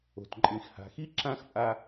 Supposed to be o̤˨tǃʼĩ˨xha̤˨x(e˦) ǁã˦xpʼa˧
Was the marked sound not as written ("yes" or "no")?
yes